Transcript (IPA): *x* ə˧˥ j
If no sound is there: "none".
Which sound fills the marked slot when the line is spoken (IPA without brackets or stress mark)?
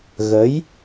ɣ